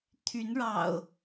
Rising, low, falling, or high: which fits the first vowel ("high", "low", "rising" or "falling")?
rising